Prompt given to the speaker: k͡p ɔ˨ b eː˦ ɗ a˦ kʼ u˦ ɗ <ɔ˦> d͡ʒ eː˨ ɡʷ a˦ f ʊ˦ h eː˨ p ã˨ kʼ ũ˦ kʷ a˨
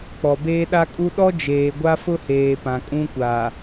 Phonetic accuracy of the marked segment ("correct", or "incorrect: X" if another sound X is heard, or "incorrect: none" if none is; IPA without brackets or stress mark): correct